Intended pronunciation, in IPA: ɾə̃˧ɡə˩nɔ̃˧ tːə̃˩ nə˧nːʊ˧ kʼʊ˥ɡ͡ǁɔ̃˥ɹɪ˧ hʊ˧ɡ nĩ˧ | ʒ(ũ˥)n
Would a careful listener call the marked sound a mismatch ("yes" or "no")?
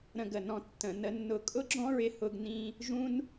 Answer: no